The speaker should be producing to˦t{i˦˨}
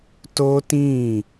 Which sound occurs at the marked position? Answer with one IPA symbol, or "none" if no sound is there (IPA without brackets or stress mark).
ĩ˦˨